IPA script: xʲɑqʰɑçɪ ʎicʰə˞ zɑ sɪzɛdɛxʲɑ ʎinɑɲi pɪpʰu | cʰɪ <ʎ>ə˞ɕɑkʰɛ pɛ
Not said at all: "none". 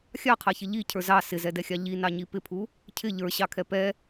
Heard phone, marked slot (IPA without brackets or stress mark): ʎ